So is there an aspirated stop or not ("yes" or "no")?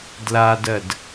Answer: no